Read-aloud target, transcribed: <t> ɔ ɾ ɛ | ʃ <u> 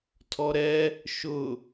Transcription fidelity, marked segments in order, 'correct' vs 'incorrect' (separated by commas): incorrect, incorrect